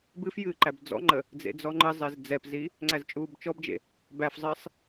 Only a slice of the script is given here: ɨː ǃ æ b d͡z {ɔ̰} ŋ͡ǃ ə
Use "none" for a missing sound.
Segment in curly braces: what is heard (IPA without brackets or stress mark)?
ɔ̰